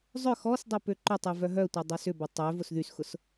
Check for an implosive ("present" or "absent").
absent